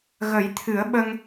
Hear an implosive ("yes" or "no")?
yes